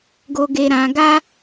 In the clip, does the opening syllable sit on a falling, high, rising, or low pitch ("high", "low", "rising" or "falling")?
low